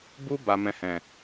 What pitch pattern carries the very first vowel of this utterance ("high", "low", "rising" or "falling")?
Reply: high